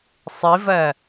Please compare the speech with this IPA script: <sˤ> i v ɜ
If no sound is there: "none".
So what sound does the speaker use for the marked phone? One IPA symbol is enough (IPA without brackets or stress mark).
sˤ